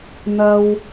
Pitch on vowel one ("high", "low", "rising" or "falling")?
high